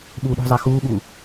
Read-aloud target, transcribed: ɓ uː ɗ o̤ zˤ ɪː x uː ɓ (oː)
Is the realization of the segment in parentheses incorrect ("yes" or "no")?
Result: yes